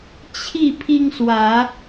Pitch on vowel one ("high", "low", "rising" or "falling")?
falling